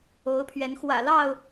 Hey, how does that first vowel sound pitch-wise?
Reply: rising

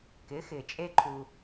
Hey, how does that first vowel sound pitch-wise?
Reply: rising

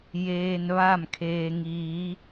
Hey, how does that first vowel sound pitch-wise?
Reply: low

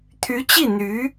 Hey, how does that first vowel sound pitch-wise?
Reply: rising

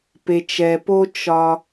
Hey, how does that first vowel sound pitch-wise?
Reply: low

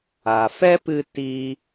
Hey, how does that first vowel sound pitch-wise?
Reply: low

